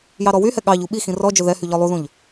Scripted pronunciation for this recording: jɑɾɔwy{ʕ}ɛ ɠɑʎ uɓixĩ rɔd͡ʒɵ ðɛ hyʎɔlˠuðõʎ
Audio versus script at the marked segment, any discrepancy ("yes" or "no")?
yes